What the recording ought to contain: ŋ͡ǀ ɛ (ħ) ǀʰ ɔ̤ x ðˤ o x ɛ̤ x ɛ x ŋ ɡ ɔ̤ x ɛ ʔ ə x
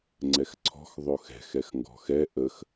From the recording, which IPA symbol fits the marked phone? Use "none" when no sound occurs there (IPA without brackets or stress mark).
x